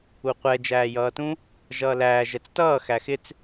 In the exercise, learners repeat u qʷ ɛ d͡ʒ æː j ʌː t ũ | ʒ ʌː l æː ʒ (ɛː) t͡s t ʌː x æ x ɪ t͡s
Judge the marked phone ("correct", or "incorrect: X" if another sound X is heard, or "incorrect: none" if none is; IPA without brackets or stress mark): incorrect: ɛ